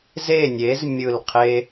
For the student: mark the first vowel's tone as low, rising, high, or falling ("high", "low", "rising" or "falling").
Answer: falling